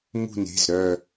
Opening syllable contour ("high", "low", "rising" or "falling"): falling